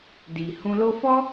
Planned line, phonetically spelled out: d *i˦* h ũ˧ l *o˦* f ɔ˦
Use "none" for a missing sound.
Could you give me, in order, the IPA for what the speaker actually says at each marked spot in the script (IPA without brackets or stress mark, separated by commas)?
i˨, o˦